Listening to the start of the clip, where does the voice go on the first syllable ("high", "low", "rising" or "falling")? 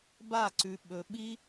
falling